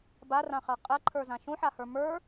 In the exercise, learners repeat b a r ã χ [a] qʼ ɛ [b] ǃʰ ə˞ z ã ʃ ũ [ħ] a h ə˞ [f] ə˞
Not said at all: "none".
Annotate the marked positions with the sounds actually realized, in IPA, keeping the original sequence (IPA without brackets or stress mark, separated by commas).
a, none, ħ, m